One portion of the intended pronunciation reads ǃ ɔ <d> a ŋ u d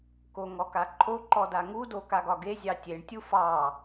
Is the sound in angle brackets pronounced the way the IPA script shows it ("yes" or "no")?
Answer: yes